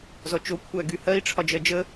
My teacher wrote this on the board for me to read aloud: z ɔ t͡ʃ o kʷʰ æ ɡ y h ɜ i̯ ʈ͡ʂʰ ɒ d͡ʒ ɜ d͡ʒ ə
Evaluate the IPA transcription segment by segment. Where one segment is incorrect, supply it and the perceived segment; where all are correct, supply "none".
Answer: none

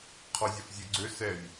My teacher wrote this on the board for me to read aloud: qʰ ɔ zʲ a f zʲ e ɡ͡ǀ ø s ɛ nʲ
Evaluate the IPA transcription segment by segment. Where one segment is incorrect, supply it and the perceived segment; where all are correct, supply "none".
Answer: none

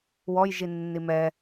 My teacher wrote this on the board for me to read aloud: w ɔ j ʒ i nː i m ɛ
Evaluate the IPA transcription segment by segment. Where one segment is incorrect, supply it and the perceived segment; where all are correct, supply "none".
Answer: none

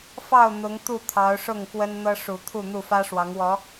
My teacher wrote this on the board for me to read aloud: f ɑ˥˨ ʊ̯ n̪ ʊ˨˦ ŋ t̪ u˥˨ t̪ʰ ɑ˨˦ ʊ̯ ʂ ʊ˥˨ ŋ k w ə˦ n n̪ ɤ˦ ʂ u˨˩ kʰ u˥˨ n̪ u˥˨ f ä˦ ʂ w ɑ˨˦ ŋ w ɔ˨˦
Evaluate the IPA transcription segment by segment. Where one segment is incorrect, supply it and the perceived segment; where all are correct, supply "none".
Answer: kʰ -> t̪ʰ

